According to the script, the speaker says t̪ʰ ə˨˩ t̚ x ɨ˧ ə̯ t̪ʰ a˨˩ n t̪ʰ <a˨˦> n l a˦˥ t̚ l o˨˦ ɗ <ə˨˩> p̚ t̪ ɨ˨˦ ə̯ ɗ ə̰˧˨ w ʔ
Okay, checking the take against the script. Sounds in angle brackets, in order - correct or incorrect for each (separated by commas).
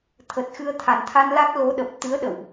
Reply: incorrect, correct